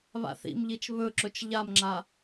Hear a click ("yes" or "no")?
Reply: yes